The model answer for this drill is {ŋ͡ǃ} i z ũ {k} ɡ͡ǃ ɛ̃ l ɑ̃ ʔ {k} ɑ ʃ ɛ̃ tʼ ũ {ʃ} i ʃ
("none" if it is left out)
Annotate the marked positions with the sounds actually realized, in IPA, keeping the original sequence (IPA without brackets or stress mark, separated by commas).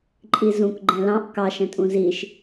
ǃʼ, k, k, z